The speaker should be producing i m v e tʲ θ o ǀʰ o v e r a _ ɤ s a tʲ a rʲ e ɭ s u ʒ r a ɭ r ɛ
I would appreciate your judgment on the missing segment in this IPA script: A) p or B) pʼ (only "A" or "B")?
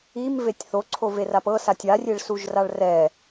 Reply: A